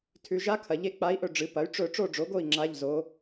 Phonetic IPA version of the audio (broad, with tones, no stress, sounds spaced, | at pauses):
tʰ ʉ˨ ʒ a˧˥ kʰ ɐ˨ ʎ e˥˨ k͡p a˧˥ i̯ ʔ ɵ˥˨ ɖ͡ʐ ɨ˩˥ p ɐ˩˥ y̯ ʈ͡ʂ ɵ˥˨ ʈ͡ʂ o˥˨ ɖ͡ʐ o˩˥ ɡ o˥˨ i̯ ŋ͡ǁ a˧˥˧ ʎ z o˧˥